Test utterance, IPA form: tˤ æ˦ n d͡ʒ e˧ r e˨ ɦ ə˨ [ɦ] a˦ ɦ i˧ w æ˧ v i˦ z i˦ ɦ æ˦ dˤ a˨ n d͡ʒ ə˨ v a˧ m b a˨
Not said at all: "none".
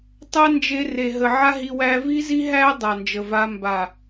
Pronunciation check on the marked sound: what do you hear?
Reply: ʕ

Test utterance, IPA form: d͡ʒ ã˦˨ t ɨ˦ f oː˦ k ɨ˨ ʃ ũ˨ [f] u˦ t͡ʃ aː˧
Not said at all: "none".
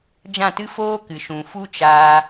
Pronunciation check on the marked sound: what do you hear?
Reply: f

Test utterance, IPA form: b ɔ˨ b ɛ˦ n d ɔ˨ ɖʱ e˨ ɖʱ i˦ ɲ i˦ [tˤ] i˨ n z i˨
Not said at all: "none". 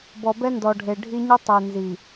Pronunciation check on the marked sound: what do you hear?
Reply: tˤ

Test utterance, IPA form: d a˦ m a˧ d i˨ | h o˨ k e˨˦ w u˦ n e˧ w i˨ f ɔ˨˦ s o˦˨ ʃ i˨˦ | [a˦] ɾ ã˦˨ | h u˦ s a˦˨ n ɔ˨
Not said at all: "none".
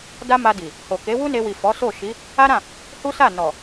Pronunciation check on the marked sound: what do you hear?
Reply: a˦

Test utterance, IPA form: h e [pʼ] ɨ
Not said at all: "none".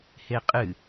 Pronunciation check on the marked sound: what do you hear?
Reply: qʼ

